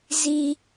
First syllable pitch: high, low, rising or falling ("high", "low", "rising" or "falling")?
high